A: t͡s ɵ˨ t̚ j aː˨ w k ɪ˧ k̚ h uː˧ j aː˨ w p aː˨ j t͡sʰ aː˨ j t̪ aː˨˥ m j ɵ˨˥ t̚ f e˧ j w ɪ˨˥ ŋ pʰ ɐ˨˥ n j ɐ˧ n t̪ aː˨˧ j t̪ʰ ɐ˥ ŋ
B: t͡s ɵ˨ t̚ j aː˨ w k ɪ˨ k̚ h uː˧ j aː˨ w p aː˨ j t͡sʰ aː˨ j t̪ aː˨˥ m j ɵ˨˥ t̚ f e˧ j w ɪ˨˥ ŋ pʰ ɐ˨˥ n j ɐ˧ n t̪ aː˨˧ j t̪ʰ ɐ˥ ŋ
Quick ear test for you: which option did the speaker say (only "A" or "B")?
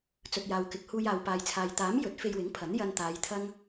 B